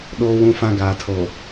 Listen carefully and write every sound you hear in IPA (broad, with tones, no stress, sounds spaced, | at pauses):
ɗ oː˦ w ũ˦ f ã˦ ɡ aː˨ tʰ oː˨